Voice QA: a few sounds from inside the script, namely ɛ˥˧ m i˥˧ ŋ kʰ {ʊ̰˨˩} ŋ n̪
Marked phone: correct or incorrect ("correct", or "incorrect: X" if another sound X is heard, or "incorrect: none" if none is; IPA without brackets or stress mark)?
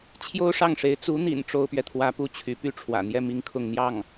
incorrect: ʊ˥˧